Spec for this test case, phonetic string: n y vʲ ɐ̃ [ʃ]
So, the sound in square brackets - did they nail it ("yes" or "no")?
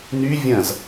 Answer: no